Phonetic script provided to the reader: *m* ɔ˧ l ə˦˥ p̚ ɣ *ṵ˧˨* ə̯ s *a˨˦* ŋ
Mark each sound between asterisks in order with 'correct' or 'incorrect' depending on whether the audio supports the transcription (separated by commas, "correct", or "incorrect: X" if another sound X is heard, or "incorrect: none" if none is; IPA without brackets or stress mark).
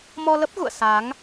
correct, correct, correct